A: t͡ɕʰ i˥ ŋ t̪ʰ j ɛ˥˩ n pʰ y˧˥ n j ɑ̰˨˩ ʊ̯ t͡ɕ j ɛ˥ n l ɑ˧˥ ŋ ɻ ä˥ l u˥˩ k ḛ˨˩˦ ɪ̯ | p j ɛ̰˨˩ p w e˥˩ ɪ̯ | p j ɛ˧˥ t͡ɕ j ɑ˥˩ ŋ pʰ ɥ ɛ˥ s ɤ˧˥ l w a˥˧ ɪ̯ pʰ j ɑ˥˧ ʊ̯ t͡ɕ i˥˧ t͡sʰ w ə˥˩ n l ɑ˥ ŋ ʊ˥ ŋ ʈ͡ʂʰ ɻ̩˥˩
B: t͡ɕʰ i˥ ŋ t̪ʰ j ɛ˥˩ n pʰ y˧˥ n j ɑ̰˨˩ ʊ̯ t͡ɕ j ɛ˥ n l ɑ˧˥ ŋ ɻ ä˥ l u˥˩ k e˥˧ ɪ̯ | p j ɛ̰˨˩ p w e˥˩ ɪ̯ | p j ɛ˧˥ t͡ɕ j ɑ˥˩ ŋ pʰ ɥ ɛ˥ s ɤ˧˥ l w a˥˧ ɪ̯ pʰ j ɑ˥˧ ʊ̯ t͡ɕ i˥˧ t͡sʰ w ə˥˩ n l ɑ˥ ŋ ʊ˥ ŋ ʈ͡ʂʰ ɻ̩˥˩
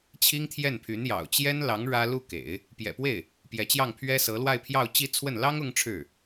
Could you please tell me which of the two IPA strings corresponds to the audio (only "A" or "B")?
A